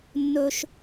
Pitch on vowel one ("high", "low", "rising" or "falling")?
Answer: high